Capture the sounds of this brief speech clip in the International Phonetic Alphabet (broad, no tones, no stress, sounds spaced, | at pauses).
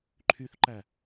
ǃʰ y θ ǃ æ